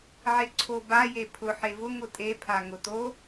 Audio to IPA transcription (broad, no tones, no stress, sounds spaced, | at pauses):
ʕ e ǀʰ o b a j e pʰ ʊ ħ e v ʊ ŋ ʊ tʼ e pʰ a ŋ ʊ t o